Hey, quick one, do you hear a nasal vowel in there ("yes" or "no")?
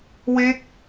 no